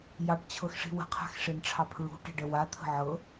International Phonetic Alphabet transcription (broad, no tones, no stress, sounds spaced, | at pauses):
j ɑ ʈ t͡ɕʰ ɤ x ʂ i̤ w ə̤ qʰ a̤ x ʂ e n ʈ͡ʂʰ ɑ pʰ ɹ ṳ ʈ e̤ ɖ ə w a t̪ʰ ə̤ ʕ ɤ